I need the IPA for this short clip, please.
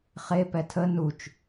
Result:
χepɛ tʰə nut͡ʃ

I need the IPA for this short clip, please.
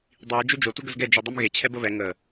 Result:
dˤiɹ d͡ʒød͡ʒo tuɡəzɡɛ d͡ʒidˤumɣe t͡ɕʰɛbəβɛ ŋə

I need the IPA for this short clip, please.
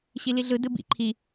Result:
ɕiliɮɯ dɯbḭ ǃʰi

